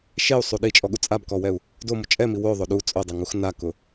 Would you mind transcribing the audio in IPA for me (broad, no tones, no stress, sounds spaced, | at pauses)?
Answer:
ʃ e u̯ sˤ u ɗ i t͡ʃʼ ɔ ɠ u t͡sʼ a b k ɔ w ɛ u̯ | d o m ʊ t͡ʃʼ ɛ m i w o ðˤ o ɗ u t͡sʼ o dˤ ɛ ŋ u x n a k ʊ